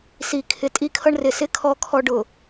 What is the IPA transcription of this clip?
s i˨ kʰ ɪ˨ tʼ i˦ kʰ ʌ˦ ɳ r ɪ˨ s ɪ˦ kʰ ɔ˦ kʰ ɔ˦ ɖ ʊ˨

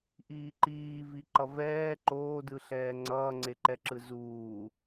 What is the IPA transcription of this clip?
ʔ iː ǃ iː v i ǃ ʌ v ɛː ǃ oː d ɯ ɬ ɛː ŋ͡ǀ ʌː ŋ͡ǀ e ǃ ɛ ǁ ɯ z uː

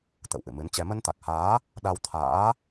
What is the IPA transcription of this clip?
t̪ ə̰˧˨ w ʔ ɨ̰˧˨ m ɨ˨˦ n t͡ɕ ɛ˧ m ə˧ n t̪ a˨˩ k̚ h aː˨˦ | ɗ a˧ w t̪ʰ a̰ː˧˥

